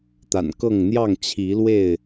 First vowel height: low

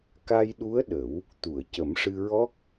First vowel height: low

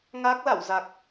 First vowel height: low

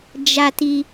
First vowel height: low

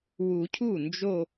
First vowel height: high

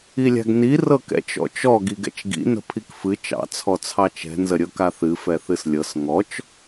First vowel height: high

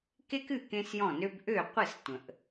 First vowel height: mid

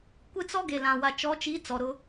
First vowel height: high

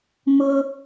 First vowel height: high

